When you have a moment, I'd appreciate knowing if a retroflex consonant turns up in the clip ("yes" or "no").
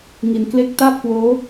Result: no